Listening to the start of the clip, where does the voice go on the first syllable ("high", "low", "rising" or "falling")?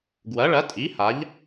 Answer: rising